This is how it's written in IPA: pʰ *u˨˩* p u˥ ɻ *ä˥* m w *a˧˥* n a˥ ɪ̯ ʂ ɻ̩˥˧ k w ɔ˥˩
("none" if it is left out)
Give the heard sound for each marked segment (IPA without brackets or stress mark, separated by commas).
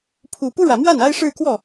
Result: u˨˩, ä˨˩, a˥˩